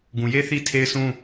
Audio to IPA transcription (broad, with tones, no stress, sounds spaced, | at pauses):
ɡ ũ˨ j e˦ θ i˦ tʰ e˦ ɪ̯ s ũ˦